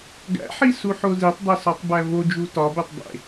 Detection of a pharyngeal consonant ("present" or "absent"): present